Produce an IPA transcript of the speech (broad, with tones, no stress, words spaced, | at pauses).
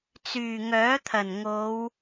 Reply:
t͡syː˨˩ŋœː˨˥t̪ʰɐ˨˩n ŋo˨˧w